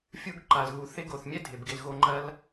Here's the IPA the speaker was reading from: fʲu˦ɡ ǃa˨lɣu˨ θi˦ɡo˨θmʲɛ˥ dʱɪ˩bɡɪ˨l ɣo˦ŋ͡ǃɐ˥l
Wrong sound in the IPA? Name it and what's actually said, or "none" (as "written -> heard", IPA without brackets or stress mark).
i˦ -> ɪ˦